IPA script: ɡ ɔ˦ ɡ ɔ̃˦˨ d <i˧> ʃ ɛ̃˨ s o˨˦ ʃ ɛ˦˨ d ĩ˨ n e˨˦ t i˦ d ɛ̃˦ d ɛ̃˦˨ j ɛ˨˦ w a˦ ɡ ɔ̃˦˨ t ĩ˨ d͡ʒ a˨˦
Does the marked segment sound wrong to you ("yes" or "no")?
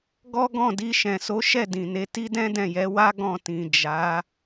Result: no